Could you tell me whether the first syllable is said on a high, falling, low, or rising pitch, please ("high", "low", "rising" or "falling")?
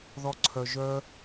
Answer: high